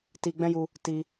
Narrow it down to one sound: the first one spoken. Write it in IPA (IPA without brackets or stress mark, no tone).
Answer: t